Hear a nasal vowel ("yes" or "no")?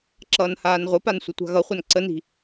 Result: no